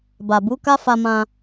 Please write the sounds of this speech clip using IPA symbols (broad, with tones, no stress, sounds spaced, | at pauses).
b a˨ b u˨˦ k a˦ f a˧ m ã˧